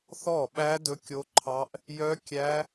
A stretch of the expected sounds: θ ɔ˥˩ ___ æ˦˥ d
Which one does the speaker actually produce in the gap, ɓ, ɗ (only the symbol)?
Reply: ɓ